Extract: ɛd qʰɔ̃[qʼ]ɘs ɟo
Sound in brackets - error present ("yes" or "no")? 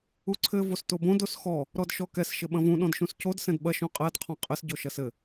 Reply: no